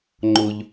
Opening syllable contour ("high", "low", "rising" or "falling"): high